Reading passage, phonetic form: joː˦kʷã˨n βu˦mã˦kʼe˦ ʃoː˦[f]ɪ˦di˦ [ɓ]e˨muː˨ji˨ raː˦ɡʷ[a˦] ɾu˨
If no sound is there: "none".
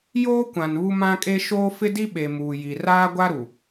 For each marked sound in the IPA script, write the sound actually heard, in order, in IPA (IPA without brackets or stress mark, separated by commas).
f, ɓ, a˦